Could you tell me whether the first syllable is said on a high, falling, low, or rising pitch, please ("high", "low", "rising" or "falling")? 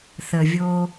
low